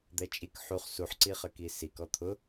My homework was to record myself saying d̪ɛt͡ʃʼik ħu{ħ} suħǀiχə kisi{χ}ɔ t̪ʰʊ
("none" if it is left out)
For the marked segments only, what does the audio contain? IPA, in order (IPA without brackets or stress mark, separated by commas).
χ, k